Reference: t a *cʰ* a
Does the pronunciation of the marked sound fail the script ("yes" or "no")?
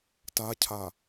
no